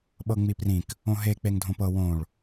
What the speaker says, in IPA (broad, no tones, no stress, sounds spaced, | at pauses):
ɓ ɤ ŋ͡m i p r ĩ k | õ ɦ e k͡p e ŋ dʱ õ p ɤ w õ ɭ